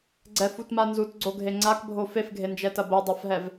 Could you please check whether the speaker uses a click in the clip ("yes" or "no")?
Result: yes